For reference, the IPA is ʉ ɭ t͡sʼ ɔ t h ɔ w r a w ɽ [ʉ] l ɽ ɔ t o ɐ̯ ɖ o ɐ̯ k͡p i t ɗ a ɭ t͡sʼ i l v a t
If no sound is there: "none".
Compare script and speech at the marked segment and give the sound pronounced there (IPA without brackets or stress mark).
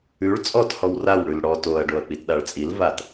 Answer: ʉ